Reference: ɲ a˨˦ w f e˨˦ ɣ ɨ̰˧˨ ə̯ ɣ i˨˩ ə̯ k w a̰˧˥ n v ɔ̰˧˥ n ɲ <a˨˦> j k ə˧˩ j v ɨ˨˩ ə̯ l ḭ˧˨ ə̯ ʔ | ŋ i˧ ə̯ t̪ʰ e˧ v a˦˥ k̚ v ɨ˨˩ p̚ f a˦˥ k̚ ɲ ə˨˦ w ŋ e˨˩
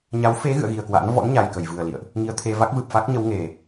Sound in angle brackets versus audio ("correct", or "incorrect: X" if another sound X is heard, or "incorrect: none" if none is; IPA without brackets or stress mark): incorrect: a˨˩